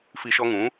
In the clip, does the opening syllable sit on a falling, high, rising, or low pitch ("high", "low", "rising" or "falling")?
high